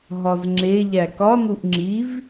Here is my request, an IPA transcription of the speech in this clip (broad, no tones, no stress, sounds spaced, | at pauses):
ɦ ɒ z ŋ͡ǁ e ʎ æ k ɒ n u ʔ ŋ͡ǁ i v